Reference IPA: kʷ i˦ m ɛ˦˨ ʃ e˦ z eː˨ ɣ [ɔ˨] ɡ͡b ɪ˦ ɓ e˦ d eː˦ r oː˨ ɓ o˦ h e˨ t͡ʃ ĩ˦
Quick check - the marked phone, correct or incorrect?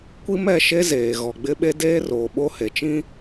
correct